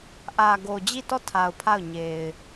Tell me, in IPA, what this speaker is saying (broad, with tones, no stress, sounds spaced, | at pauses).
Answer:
ʔ ä˨ ɡ o˨ d͡ʑ i˦˨ t ɔ˦˨ tʰ a˨ ʊ̯ pʰ a˦˨ ʊ̯ ɲ e˨ ɪ̯